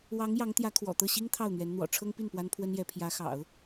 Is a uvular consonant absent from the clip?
yes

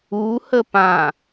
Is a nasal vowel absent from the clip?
no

